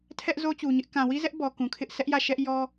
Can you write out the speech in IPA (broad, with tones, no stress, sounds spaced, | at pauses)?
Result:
tʰ ɛ˦ ʔ z o˦ t͡ɕ u˨ ɲ ɪ˦ ʔ k ã˨ w i˦ z ɛ˦ ʔ b ɔ˨ k ũ˨ kʰ ɪ˦ ʔ s ɛ˦ ʔ j ä˦˨ ʃ ɛ˦ ʔ j ɔ˦